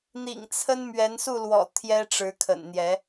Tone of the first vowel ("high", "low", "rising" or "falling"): low